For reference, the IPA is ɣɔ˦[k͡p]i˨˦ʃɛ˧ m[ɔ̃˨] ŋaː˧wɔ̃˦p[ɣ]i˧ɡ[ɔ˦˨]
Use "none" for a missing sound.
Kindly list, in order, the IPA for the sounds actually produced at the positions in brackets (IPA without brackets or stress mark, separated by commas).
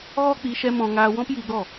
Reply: k͡p, ɔ̃˨, j, ɔ˦˨